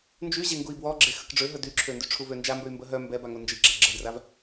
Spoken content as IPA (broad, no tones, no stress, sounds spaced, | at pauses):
n d͡ʒ y ʑ e ŋ ɡ u i̯ b w ɔ ɡ͡ǁ e x ə k ɖ͡ʐ ø ɦ ə d y ǁʰ ø n d y ʈ͡ʂʰ u v ø n d͡ʒ a m b ø y̯ m b ə ɦ œ m b ɛ b a ŋ o n d͡ʒ i ɡ͡ǁ a ɡ͡ǁ ə d r a v